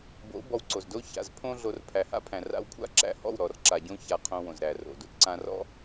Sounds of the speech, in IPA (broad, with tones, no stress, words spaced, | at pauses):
bo̰˨˦ bɔ˧wǀo˨zdo˦ ça̰˨z pʰõ˦ɮo˧r pʰæ˨ha̰˦pʰæ̃˨ ra̰˧wkʷʰa̰˦ ǁæ̰˧hɔ̰˦˨wɾɔ˨rǁa˨ ɟõ˧ ça˧qʰõ˧wõ˨zɾæ˨ ro̰˨do̰˦tǀã˦ rɔ̰˦